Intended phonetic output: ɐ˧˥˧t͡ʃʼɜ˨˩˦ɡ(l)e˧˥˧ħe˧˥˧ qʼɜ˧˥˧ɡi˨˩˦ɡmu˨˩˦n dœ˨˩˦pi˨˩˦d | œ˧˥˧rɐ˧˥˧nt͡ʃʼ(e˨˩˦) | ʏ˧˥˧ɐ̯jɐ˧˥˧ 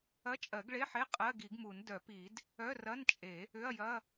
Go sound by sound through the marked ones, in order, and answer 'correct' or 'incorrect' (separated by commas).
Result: incorrect, correct